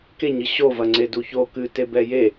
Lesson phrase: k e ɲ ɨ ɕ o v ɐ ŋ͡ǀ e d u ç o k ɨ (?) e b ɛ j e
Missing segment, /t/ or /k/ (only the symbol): t